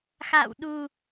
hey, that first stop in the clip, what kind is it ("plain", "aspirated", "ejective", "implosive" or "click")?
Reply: implosive